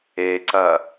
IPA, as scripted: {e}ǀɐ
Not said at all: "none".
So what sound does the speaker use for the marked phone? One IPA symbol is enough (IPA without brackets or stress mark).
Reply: e